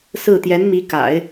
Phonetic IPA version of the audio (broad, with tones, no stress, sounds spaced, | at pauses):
s ɹ̩˥˩ t̪ j ɛ˧˥ n m i˧˥ k a̰˨˩˦ ɪ̯